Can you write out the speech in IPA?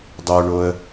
dˤ o ɳ o ə̯

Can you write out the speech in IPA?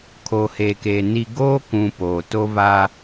kʰ oː˨ h eː˨ k eː˨ n i˨ ɡ oː˦ k ũ˨ p oː˨ t o˦ v a˦

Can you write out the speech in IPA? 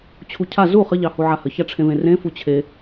t͡ɕʰ u cʰ a z u χ ə ʎ ɑ h u ʕ a h ə ç a ʈ͡ʂʰ ẽ v ẽ r ẽ f u t͡ɕʰ e

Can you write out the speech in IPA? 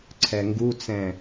ǀʰ ɛ ŋ ɡ u t͡s ɛ̃

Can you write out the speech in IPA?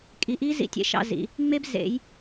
kʼ i˨ ʔ i˦ z ḭ˨ tʲ ḛ˨ ʃ ɑ̰˦ z ḭ˨˦ | ŋ͡m e˦ b z ḛ˨˦ j

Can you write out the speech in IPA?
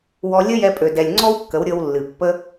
w ɔ˧ lʲ ə˦ j ɛ˧ pʼ ø˨ d ɛ˨ lʲ ŋ͡ǀ ɔ˦ w kː ə˨˦ w ɾʲ ɤ˧ w lː ɨ˨ pː ə˦

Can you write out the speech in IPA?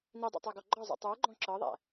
n i dˤ ḭ tˤ æ ɡ ɔ ɡ͡ǃ ɒ zˤ ṵ tˤ ə˞ ɡ͡ǃ ɔ̃ ǁ ɤ ðˤ æ̰

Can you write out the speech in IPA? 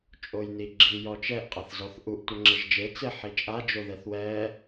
t͡ʃʼ o j n i ɡ͡ǁ i j ɔ t͡ʃ ɛ ʔ qʼ a θ z ɔ θ ʔ u ʔ tʷ a ŋ͡ǁ ɪ ʒ d͡ʒ e t͡s ɪ ħ i t͡ʃʼ a d͡ʒ o ð ɛ θ w ɛ

